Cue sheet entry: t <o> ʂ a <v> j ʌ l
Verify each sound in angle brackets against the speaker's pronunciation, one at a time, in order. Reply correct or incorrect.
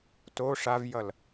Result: correct, correct

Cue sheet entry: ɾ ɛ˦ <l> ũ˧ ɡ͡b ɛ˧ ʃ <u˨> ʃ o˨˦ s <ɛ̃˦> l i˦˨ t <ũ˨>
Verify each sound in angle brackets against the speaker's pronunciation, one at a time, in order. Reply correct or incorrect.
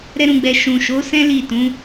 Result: incorrect: ɾ, incorrect: ũ˨, correct, incorrect: ũ˨˦

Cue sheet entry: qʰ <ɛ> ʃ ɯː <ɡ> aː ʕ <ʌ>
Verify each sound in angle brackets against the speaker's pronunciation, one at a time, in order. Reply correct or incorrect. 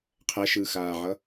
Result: correct, incorrect: x, correct

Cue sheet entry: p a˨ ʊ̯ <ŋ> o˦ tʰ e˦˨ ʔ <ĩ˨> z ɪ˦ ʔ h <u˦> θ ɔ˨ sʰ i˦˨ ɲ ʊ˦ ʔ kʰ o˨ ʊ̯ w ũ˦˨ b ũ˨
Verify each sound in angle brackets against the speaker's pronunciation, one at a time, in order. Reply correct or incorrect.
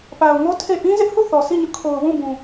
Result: correct, incorrect: ĩ˦, incorrect: u˦˨

